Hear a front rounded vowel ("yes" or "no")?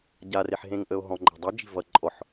no